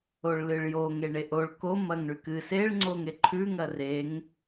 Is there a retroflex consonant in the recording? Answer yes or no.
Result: yes